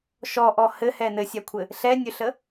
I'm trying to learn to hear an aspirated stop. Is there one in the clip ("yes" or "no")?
yes